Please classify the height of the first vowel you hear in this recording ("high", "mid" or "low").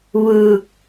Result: high